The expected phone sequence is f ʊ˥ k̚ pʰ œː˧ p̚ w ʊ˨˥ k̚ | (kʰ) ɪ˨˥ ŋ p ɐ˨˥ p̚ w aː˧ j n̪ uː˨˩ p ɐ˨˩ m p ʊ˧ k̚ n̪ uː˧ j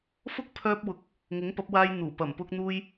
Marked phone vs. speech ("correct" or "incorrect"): incorrect